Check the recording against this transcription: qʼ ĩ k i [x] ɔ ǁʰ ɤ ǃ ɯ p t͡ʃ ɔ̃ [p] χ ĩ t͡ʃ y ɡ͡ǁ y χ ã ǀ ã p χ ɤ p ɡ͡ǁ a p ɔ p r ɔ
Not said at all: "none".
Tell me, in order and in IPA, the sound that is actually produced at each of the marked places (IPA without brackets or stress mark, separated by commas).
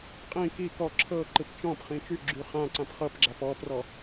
k, p